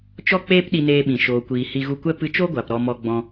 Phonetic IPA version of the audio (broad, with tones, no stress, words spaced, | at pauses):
t͡ʃɔ˧k͡peː˧p ɗi˧neː˧ɓĩ˨ ʃoː˨kʷiː˨ hi˧ɣu˧kʷɛ˦ pɨ˧t͡ʃo˦ɡʷa˨p ɾɔ˧mɔ˧ɡ͡bɔ̃˧